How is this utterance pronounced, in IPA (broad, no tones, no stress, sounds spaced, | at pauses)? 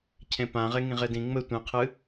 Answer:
cʰ ẽ p ã ʁ e ŋ ĩ ʁ e d ĩ ŋ͡m ɘ tʷ ẽ qʰ ɨ